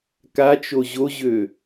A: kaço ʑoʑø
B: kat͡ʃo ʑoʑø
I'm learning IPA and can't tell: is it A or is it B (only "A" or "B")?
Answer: B